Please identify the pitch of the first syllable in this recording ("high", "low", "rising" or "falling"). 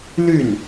falling